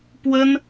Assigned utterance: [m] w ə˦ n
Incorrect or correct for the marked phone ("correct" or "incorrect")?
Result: incorrect